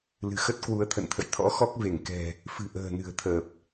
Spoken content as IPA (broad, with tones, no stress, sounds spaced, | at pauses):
l ɨ̤˨˩ x ə˦˥ t̚ k w u˨˦ ə̯ t̪ʰ ə̰˧˨ n t̪ʰ ə̰˧˨ j t̪ʰ ɔ̰˧˥ x ɔ˦˥ k̚ v e˧˩ ŋ k ɛ̤˨˩ | f ɨ̤˨˩ ʔ ə̤ː˨˩ n ɨ̤˨˩ ə̯ t̪ʰ əː˨˩ p̚